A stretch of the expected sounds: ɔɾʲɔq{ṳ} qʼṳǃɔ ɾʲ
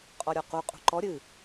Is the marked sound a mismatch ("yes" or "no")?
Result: yes